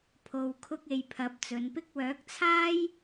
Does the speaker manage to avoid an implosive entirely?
yes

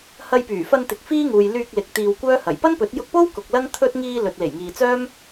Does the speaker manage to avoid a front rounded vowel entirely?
no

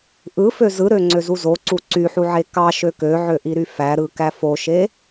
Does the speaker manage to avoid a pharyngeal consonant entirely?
no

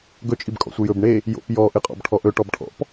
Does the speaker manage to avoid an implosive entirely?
yes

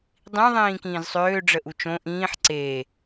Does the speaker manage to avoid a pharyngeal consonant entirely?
no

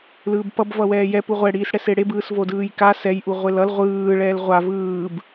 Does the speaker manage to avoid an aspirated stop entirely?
yes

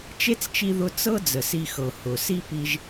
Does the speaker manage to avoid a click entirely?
yes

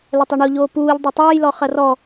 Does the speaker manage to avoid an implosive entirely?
yes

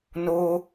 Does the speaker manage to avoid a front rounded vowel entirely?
yes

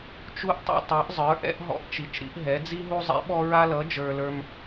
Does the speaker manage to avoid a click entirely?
yes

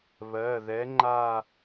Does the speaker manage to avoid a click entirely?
no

